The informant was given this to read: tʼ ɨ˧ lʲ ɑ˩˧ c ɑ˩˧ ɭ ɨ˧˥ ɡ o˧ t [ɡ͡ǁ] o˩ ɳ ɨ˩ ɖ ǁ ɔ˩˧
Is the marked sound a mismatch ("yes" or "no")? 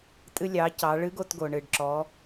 yes